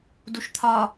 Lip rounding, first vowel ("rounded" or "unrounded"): rounded